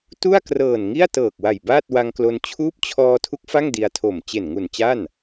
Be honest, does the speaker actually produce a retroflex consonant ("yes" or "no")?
no